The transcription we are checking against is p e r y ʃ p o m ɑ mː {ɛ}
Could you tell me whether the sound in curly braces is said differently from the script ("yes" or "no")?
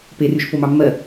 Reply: yes